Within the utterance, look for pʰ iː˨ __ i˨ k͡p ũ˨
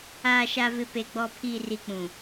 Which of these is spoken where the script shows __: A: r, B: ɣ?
A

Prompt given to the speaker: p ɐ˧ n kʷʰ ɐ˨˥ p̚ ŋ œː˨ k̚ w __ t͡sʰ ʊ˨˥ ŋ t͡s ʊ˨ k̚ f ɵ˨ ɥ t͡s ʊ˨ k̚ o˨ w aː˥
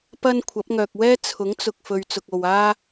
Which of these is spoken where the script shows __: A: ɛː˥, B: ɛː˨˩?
A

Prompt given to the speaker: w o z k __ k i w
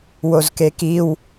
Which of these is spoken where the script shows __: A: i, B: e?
B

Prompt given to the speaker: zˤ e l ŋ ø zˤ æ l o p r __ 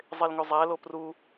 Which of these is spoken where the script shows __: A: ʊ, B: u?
B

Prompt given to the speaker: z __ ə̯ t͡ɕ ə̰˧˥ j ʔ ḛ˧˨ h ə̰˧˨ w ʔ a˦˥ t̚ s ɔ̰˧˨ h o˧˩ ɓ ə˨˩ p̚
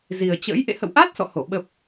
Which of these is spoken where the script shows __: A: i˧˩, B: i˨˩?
B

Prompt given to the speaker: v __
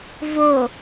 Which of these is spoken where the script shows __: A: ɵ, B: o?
B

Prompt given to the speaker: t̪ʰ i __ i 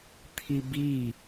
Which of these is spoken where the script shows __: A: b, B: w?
A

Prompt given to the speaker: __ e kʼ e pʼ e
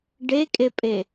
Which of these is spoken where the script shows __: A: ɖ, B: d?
A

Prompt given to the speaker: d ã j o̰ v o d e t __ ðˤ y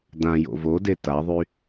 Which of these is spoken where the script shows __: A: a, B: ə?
A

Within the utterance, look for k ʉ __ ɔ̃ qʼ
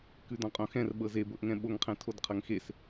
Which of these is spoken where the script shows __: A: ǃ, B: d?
B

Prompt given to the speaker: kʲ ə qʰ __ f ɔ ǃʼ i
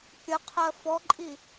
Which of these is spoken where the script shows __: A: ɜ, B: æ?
A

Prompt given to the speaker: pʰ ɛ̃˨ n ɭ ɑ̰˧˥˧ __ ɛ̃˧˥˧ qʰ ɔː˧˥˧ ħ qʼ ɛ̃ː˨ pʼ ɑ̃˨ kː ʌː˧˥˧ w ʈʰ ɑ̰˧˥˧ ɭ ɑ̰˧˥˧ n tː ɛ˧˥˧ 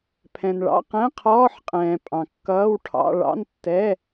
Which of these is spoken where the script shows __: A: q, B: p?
A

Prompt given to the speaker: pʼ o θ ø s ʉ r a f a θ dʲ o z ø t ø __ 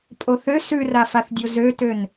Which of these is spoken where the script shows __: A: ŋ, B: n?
B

